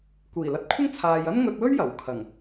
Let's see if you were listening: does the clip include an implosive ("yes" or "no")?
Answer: no